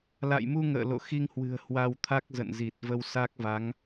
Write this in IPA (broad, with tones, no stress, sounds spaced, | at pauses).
l a̰˧˨ j m u˧ ŋ ə̰ː˧˨ l o̰˧˨ x i˧ ŋ h w ɨ̤˨˩ ə̯ h w a˧ w t̪ʰ a˦˥ k̚ z ə̰˧˨ n z i˨˩ t̚ v ə˧ w s a˦˥ k̚ v a˨˦ ŋ